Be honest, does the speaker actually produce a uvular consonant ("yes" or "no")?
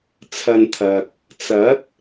no